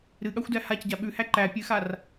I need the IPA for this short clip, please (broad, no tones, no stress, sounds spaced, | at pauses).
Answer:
ɾ ɨ ɠ a xʷ d æ h a c ɟ a ɓ ʉ h æ ǃ æ pʲ ɨ x a r